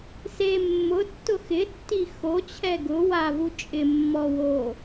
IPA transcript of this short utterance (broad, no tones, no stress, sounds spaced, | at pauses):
s e mː ʊ tː ʊ x ɪ tː i x o t͡ɕʰ ɛ ɡ ʊ w a v u t͡ʃʼ ɪ mː ɔ w o